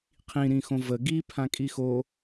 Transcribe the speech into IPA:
qʰĩɾĩxõ və ɡi pʰãkʼixo

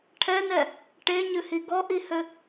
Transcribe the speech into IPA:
ʈʰɛnɛ | ʈeɲɨhi ɡɔʔihɘ

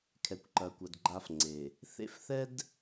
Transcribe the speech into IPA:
kʰɛ˨kʷǃɐ˨kʷɐ˨d ɡ͡ǃa˦fŋ͡ǀe˨ | θḛ˦fθɛ˦d

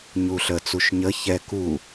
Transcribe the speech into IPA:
ɲuɬə t͡suʃɲə çɛ ku

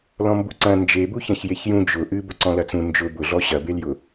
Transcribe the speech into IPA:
lɔ̃mbuǀɐ̃ nd͡ʒebu çɐ̃çjeçjũ d͡ʒʊ ʔɨbʊ ǀɔ̃lɐt͡sũ nd͡ʒʊ bʊɮɔ ɕɐbeljʊ

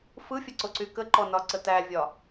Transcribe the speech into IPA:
fɯfʲəǀoǀy kəǃɔnɒǀə tævʲɒ

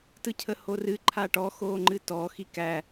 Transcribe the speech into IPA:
tɯcʰəhorɨ ǃʰaʈɔ xoːŋ͡ǃɨtɔ xikæ

